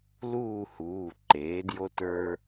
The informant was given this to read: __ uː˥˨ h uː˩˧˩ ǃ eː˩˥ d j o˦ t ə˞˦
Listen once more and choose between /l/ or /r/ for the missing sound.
l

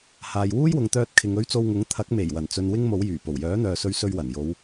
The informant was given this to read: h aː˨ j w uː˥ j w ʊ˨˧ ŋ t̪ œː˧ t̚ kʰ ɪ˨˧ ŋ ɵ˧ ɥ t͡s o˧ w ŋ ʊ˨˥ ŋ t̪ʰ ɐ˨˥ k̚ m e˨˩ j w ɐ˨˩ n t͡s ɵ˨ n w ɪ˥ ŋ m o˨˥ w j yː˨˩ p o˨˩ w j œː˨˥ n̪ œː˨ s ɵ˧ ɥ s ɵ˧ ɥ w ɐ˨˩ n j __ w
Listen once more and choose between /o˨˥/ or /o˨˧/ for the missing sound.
o˨˧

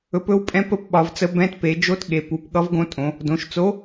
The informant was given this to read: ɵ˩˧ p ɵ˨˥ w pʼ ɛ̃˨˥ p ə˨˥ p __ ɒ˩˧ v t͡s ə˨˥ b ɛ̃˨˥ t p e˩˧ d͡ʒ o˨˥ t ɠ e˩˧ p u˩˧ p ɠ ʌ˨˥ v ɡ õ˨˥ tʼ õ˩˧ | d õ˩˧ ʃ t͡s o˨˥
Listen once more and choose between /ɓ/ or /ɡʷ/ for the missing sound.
ɓ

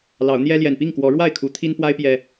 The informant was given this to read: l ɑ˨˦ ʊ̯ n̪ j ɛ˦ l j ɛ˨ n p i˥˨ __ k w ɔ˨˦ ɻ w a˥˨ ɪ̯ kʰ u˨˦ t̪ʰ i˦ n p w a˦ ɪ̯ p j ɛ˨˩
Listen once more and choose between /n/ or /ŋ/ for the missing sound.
ŋ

